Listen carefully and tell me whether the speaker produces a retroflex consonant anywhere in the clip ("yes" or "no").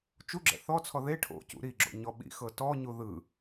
yes